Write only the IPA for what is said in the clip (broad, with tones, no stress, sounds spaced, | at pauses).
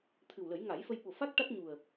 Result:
t̪ʰ ɨ˨˩ w l ə˨˩˦ j ŋ a˨˩˦ j f ə˧ j ɓ o˨˩ f a˦˥ k̚ ʈ a˦˥ t̚ ɲ u˨˩ ə̯